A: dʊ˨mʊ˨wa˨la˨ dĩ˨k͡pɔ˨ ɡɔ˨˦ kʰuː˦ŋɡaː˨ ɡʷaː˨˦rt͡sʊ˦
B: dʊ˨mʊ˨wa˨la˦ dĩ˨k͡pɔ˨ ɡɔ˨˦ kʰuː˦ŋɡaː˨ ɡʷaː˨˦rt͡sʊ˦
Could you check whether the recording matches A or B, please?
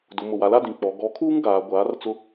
B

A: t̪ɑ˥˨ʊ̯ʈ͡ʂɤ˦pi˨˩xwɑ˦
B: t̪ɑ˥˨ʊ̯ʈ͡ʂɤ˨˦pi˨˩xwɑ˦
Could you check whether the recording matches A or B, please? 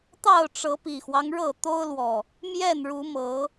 B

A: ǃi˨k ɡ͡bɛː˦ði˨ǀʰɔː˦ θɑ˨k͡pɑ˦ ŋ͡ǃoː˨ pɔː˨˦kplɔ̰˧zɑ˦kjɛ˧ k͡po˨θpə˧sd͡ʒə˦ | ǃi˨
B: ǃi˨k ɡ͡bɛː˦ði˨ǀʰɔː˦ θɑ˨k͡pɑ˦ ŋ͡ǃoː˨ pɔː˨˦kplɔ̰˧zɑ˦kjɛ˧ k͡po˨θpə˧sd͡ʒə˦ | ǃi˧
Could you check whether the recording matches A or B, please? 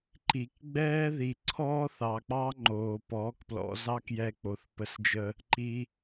B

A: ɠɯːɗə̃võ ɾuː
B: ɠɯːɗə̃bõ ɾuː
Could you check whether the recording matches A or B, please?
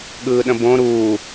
B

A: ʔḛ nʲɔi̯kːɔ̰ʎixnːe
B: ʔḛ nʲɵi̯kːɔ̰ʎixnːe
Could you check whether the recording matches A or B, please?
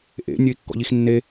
B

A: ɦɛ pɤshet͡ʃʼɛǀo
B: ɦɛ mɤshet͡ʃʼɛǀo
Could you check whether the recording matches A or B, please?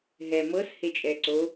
B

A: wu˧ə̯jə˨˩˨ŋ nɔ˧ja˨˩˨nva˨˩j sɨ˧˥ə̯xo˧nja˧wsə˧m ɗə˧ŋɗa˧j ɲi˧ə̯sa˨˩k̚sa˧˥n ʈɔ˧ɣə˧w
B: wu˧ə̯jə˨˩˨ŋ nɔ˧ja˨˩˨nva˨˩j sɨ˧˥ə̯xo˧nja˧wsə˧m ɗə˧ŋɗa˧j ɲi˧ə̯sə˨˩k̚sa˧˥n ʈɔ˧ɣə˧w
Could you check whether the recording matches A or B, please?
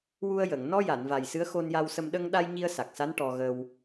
A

